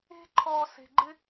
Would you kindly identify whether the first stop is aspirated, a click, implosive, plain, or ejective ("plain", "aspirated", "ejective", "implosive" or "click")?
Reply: click